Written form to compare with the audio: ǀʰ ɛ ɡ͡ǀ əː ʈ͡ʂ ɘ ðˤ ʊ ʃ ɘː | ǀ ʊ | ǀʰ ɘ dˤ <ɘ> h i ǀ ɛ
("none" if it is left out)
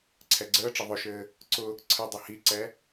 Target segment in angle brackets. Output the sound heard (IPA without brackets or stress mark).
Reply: ɘ